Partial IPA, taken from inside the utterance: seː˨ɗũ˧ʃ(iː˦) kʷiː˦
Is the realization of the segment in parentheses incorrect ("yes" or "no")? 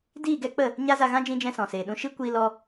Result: yes